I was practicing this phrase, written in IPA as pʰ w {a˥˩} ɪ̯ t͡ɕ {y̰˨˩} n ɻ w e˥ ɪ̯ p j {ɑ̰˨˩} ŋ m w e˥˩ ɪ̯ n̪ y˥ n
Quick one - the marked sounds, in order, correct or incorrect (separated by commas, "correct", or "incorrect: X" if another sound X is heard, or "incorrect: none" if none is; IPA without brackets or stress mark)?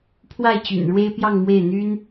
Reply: correct, correct, incorrect: ɑ˥˧